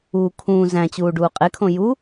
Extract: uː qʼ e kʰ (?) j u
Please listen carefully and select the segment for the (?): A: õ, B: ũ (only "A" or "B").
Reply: A